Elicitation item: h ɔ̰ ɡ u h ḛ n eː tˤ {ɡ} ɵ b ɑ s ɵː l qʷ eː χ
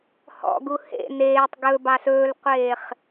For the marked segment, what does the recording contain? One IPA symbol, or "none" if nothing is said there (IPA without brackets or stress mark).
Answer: ɡ